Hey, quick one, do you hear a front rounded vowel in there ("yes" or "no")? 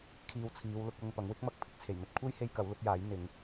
no